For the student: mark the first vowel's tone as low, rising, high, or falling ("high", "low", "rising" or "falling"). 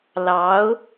rising